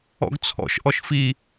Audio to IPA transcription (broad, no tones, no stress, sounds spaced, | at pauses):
ɔ̰ ɡ t͡sʰ ɔ̰ ʃ ʔ ɔ ʃ f i